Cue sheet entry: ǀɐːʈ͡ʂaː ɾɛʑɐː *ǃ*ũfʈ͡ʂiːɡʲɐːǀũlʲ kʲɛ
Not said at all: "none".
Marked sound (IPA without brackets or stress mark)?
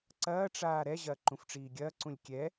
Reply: ǃ